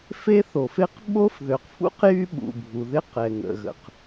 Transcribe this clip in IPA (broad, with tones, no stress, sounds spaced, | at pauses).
f e˥ θ o˩ f e˥ q ɓ o˥ f ð ø˩ q f ṵ˥ q j y˥ ɓ ṵ˩ bʱ u˩ ð ɪ˥ q ɛ˩ ŋ ə̰˩ ɣ ə̰˩ q